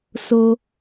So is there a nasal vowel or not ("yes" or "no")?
no